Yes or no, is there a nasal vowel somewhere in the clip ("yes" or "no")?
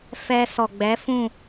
yes